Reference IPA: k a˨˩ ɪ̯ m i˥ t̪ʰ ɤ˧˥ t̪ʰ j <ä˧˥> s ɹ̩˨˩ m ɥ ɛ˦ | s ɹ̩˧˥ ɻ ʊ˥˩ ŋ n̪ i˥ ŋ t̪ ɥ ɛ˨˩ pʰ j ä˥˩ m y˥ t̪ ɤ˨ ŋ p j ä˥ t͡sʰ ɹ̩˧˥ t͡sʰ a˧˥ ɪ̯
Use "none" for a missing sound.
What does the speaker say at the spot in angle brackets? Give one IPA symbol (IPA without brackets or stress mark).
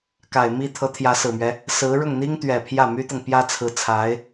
ä˧˥